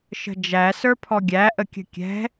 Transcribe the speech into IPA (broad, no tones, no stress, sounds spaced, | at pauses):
ʃ ə̤ d͡ʒ æ s ə˞ pʰ ɔ ɡʲ æ ʔ ə kʲ ə̤ kʲ ɛ̤